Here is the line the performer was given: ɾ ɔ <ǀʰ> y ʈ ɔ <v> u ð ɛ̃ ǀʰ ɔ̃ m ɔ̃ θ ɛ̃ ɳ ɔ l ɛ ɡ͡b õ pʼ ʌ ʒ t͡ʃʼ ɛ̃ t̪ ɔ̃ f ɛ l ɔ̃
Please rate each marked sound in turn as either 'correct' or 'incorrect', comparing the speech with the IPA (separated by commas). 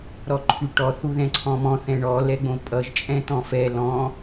incorrect, incorrect